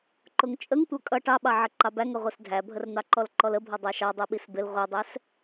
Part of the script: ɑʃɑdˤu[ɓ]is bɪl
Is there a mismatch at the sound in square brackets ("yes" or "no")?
no